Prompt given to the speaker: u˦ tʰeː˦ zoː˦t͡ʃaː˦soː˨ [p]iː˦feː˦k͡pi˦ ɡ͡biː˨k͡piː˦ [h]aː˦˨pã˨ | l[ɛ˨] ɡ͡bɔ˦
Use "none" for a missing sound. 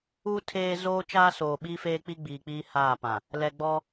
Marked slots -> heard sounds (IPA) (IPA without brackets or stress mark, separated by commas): ɓ, h, ɛ˨